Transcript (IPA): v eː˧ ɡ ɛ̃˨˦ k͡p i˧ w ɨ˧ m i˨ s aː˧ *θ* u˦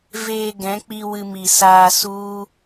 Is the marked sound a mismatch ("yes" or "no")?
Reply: yes